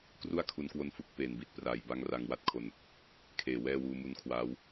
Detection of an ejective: absent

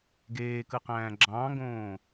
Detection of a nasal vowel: present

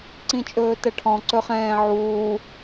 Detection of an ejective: present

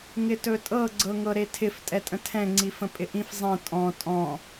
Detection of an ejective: present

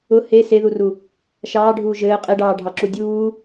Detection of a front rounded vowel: absent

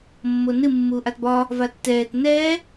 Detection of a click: absent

